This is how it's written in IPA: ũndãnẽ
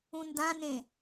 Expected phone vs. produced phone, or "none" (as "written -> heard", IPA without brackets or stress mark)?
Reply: none